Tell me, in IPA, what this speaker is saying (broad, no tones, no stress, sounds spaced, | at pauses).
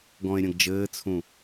ɡ ɔ̃ e̯ ɾʲ ɐ̃ ɡ d͡ʒ ɘː t͡sʰ ũ